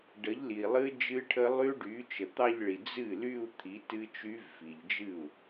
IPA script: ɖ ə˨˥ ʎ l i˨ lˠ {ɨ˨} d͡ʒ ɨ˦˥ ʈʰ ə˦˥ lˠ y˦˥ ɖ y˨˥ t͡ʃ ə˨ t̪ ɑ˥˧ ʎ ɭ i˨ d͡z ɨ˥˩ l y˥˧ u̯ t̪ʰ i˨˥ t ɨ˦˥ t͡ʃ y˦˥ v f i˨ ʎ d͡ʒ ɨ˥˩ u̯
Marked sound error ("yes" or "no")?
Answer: yes